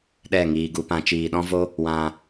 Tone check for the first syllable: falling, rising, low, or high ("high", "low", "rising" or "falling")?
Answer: falling